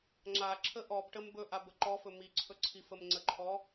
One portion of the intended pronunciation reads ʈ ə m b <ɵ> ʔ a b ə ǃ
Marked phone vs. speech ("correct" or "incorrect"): correct